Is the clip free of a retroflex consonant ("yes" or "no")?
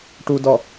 no